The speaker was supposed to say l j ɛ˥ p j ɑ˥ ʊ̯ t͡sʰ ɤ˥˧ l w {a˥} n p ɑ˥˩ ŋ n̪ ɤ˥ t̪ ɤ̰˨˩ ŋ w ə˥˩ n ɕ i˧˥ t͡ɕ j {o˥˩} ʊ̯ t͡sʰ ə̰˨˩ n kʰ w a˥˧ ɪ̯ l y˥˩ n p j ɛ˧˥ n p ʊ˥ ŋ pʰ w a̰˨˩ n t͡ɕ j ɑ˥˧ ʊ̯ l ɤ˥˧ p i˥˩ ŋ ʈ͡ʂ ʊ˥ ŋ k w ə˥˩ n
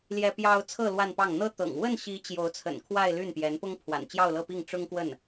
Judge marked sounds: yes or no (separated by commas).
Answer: no, no